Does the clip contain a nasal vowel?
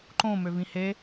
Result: yes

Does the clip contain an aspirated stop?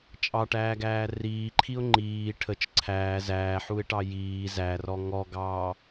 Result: yes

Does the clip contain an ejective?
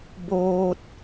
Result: no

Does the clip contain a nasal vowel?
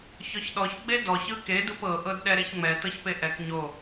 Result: no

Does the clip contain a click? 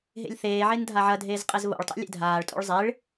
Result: no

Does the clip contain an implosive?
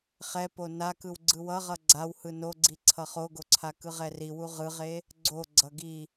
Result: no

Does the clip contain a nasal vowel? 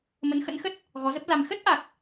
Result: no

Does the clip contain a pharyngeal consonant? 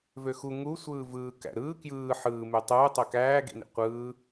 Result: yes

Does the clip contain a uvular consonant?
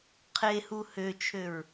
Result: yes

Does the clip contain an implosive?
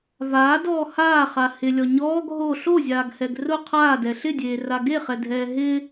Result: no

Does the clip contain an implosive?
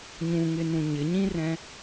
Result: no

